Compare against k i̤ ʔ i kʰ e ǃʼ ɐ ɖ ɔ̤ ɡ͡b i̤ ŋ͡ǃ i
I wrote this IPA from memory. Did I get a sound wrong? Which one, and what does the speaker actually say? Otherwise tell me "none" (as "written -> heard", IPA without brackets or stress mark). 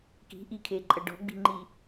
none